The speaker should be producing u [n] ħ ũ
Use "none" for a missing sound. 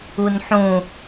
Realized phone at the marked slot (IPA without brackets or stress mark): n